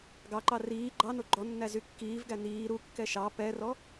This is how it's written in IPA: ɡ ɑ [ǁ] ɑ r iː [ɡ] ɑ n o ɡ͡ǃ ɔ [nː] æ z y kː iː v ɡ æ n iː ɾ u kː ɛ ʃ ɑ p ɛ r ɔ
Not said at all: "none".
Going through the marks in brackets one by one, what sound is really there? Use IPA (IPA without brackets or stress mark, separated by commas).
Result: ǃ, ɡ͡ǃ, nː